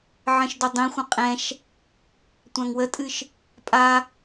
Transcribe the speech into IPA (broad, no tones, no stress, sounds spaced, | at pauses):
ʕ ə̃ ʃ d o dˤ ĩ xʷ ə̃ qʼ ɛ̃ ʃ | tʷ ã ŋ w ə tʼ ɨ ʃ | pʼ a